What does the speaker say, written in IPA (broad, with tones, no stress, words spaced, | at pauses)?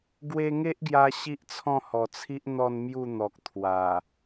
ɡwe˧ŋe˦ʔɡja˧ ɕi˦ʔt͡sʰɔ̃˥˧hɔ˨˩t͡sʰi˦ʔ n̪ɔ˥˧n mju˥˧n̪ɔ˨k̚ t̪ʰwa˨˩